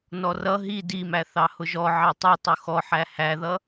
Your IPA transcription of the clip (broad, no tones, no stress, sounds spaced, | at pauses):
n ɔ r ʌ ɦ i d i m æ θ ɑ h ʊ ʒ ɔ ʕ ɑ tˤ i tˤ ʊ x ɔ ħ æ h æ ð ʌ